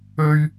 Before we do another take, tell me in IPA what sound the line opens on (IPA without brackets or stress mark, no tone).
ɵ